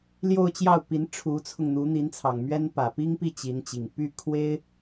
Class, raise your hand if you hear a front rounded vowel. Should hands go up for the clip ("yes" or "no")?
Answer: yes